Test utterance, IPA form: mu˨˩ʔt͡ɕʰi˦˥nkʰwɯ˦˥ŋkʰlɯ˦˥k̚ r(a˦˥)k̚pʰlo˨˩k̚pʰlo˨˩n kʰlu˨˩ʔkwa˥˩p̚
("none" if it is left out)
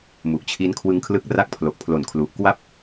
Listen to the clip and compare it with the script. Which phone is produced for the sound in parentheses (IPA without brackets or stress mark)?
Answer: a˦˥